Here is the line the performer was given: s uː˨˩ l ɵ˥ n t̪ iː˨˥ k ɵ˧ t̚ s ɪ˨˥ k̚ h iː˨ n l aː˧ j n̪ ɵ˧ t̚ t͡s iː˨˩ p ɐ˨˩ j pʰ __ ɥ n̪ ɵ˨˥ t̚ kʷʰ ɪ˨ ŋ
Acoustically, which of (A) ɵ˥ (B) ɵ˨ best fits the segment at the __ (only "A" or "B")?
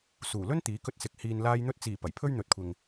A